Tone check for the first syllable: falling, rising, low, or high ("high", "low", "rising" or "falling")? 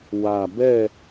low